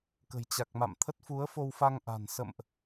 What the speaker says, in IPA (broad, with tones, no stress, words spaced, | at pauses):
kə̤˨˩jt͡ɕa˨˩k̚ma̰˧˨m t̪ʰə˦˥t̚fu˨˦ə̯fo˧wfa˧ŋ ʔa̤˨˩n sə̰˧˨mʔ